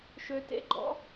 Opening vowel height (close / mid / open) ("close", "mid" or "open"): mid